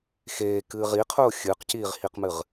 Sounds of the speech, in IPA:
xeːkɨː ʁiqʰʊː xʲɨːqciːʁhiqmɨʁ

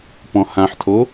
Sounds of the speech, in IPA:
pɔ̃hãħtʰo

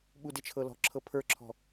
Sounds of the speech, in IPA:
ɓudɪt͡ʃʰɤ lɔ̤ǁʰɤ pʰə˞ǁʰɔ̤

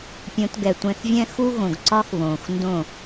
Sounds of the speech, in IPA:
pʲõ˧tɡɛ˨tʷɛ̃˧θvʲɛ̃˦ xu˦ɣõ˨ɡǀɒ˦x βõː˨xndõ˦˨

